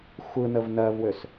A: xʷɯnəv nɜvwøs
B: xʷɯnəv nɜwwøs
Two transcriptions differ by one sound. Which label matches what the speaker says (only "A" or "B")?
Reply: A